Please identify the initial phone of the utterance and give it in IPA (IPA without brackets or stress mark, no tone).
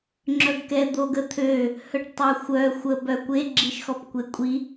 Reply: ŋ͡ǁ